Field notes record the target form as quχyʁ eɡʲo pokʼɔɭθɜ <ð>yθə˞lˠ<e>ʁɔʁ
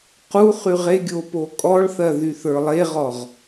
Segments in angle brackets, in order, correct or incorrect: correct, correct

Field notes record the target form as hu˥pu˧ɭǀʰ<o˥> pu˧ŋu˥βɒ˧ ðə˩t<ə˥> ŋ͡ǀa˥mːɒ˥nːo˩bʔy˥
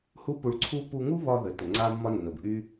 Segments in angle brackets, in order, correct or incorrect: incorrect, incorrect

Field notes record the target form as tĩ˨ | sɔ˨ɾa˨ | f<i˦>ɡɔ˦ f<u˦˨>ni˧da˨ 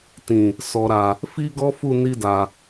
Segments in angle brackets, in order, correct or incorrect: correct, correct

